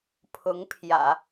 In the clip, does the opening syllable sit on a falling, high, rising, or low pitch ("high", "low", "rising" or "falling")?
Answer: rising